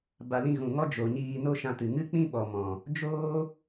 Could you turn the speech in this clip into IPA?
ba˨lĩ˧ ɣũ˨ŋɔ˦d͡ʒo˨ ɲiː˧no˦ ʃã˧tɨ˨ ŋɨ˦k͡pĩ˦ ɓɔ˨mɔ̃˨ | d͡ʒoː˦

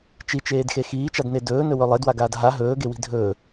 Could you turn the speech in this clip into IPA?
t͡ʃit͡ʃeːdxe xiːt͡ʃadne dɵːnɵwɵ lˠedwaɡaːd ɦa ɦɵːɡewi̤ dʱɵː

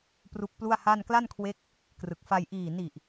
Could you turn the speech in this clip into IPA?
pru˦˥k̚plu˥˩a̯ha˥˩n kla˥˩nkʰwe˦˥k̚ | krɯ˨˩k̚fa˧j ʔiː˨˩ni˨˩ʔ

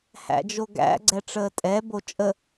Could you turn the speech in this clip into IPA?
hæ̰d͡ʒoɡæ̰ ɡ͡ǀɛʈ͡ʂəːtʼɛ bot͡ʃʼə

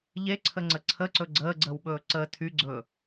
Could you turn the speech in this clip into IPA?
ʎeǀʰəŋ͡ǀə ǀʰəǀɵ ɡ͡ǀəːɡ͡ǀəːwɓɵː ǀəː tʰyɡ͡ǀɵː

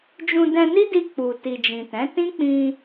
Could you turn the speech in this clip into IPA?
d͡ʒũ˧ dɛ̃˧ni˦di˧ k͡pu˨ ti˨d͡ʒĩ˨ tɛ̃˨˦ tĩ˦k͡pĩ˧

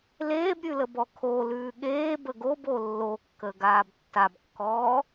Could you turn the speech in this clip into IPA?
leːbɾʲʉləbɔ kʰolʉː ɠeːbə ɡobo lːokːəɡaːb tːabkːɔː

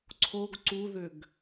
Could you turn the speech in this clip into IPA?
ǀʰoɡ ǀuðʏɡ

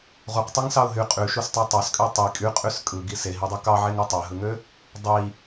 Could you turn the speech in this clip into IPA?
ʁuqtˤiŋsɑʊ̯ ɦy qʼyʃustˤæ tˤɑskʼø tˤi kʼyqʼys kʼɯɡi seɦidˤɯ kɑʕeŋɯ tˤæɦɯŋø | dˤi

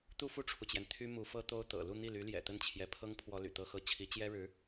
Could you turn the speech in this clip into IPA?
t̪u˥˧fu˥˩ʈ͡ʂʰu˩t͡ɕjɛ˩n t̪ʰy˥mu˧˥ fɤ˥t̪o˥ʊ̯t̪ɤ̰˨˩ lu˥˧n̪i˥˩ly˧˥ ljɛ̰˨˩t̪ə˥˩nt͡ɕʰjɛ˧˥pʰɤ˥ŋ pʰwɔ˥ly̰˨˩t̪ɤ˥xɤ˥ t͡ɕʰi˧˥t͡ɕjɛ˥ɻɻ̩˧˥

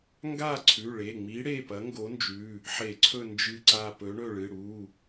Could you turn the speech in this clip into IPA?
ŋɡa˦˨ ǀʰʉ˩˧˩ɭe˩˧˩ŋ͡mi˨˥ ɽe˩˧˩pɐ˨˥ŋɡo˨˥nd͡ʒʉ˩˧˩ | ħe˧˩˧ǀʰɵ˦˨ nd͡ʒɨ˦˨ǀa˦˨pɵ˨˥ ɳɵ˦˨ɭɨ˩˧˩ ɽu˩˧˩

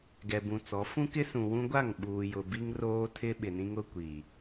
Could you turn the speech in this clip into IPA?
ɡɛ˨bũ˨t͡sɔ˨˦ fũ˦kɪ˦ sũ˨ wũ˦ɡʷa˦˨ŋɓuː˨jʊ˨ bi˦ŋ roː˦tʰɪ˦ ɓɪ˨nĩ˦ŋ ʊ˦kʷi˨

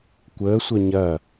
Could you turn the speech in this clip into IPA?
kʷəːsʷœ ɲɐ

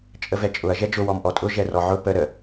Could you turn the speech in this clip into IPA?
t͡ʃʼəvɛt͡ʃʼʊɐ̯ ʒɛd͡ʒʊ wɔmʔɔtʼʊ ʒɛrɔʕʊ pə ɾə

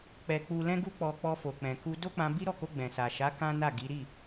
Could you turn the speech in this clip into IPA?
k͡pɛ˨ k͡pu˨lɛ̃˧ɡu˧k͡pɔ˨ k͡pɔ˧fo˨k͡pɛ̃˨ku˧ do˦k͡pã˧bi˦ ɾɔ˦˨ko˧ɡ͡bɛ̃˨ sa˨ʃa˨˦ kã˦na˦˨ɡi˨˦ ɾi˦˨

